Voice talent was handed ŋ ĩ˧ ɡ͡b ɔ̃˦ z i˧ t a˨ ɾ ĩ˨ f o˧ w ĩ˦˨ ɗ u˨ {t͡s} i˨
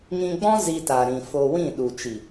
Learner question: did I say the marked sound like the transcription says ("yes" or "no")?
no